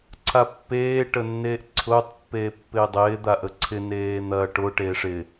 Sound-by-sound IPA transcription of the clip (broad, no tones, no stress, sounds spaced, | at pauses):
ǀʰ a pː eː ʈ ə nː eː ʔ ǀʰ ʊː tˤ pː eː pː ɪː dˤ ɪː d̪ a ʔ ə ǀʰ ɪ n eː n̪ ɐː ʈ ʊ ʈ eː ʂ ɪ